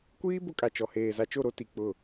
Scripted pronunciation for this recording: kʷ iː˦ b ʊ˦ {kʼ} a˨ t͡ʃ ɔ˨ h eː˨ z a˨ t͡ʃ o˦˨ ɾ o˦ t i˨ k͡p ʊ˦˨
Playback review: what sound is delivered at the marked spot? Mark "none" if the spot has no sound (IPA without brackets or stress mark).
kʼ